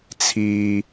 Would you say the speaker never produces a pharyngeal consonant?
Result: yes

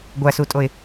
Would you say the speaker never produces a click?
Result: yes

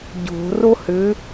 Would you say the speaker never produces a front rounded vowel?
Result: no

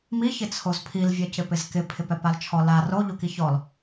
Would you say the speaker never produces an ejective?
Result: yes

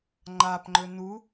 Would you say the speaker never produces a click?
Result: no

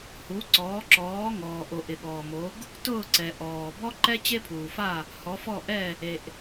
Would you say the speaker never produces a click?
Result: no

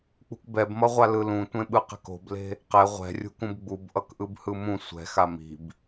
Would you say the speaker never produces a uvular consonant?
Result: no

